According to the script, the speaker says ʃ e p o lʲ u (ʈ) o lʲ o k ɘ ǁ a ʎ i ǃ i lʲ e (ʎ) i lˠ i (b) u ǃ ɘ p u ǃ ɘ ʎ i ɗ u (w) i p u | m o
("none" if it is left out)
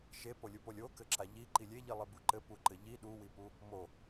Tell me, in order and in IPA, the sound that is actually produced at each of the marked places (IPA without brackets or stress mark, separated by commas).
p, ʎ, b, w